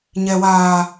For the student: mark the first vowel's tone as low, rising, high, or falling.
low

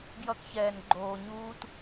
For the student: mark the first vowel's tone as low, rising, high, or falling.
high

